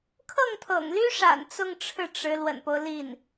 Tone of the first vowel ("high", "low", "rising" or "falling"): falling